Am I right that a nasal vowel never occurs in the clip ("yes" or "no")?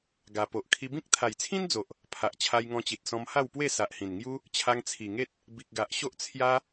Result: no